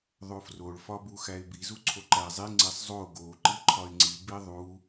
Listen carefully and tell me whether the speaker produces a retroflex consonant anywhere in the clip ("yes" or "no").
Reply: yes